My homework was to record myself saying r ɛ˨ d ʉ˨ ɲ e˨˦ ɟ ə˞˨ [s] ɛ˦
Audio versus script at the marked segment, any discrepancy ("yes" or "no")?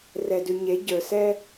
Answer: no